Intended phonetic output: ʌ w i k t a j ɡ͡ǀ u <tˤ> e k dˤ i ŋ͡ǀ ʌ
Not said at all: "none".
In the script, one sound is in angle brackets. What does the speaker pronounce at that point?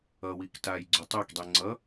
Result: tˤ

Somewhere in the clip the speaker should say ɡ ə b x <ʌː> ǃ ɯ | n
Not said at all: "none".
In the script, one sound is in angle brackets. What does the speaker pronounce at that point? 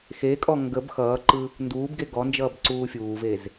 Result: ʌː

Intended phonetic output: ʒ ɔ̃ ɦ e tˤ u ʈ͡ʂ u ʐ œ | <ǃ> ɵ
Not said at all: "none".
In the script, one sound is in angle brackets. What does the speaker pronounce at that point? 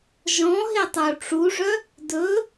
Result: d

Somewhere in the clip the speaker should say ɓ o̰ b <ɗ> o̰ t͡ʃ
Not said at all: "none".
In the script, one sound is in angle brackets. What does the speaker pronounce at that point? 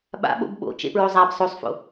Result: ɓ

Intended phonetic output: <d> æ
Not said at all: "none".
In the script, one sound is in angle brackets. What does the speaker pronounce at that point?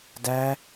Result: d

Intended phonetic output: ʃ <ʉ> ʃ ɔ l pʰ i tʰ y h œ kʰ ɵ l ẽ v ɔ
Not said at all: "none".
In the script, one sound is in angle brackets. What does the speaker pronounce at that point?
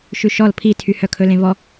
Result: ʉ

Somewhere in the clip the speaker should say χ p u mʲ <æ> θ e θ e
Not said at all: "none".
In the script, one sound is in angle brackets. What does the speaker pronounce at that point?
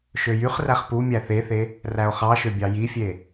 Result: æ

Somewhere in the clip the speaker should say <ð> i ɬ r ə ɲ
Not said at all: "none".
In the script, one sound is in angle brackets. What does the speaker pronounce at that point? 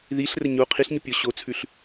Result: ð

